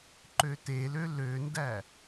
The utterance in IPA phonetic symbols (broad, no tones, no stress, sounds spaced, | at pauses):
ǃ ø t e l ø l ø n d æ